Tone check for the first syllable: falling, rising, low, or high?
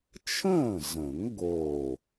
falling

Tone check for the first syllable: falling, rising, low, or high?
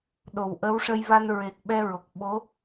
low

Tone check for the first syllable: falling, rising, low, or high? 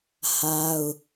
high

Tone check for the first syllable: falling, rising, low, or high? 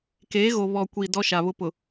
rising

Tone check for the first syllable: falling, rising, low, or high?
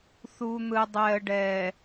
low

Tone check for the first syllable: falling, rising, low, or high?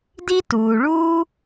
high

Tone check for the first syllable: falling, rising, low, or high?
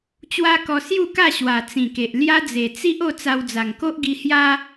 high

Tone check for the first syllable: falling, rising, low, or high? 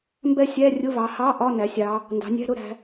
falling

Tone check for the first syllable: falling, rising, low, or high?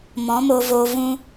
rising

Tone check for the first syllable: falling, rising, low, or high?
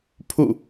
falling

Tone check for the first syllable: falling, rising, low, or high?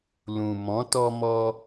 low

